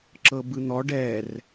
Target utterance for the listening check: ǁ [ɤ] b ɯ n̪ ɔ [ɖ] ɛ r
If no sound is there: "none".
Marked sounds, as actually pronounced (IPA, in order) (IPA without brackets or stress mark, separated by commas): ɤ, ɖ